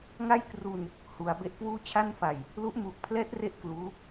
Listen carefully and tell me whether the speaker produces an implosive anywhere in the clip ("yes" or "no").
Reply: no